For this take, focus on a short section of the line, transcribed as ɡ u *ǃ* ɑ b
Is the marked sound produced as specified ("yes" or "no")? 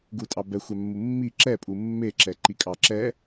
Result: no